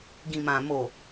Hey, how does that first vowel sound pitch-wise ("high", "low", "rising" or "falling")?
low